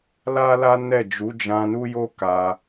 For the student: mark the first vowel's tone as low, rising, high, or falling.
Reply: high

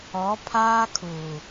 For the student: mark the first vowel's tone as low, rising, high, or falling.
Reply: rising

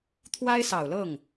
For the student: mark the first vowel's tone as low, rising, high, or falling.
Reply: high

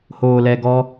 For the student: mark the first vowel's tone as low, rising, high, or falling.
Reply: low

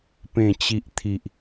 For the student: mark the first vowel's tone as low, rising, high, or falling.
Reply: low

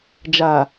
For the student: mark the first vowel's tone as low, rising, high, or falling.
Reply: low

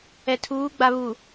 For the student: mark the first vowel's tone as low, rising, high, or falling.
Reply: low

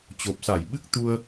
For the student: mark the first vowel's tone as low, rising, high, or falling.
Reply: low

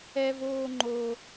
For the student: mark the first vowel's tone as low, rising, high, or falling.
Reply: high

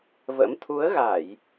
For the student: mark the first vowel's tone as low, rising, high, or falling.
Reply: rising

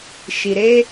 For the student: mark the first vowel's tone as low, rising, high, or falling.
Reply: low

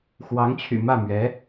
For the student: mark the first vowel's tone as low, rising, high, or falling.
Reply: rising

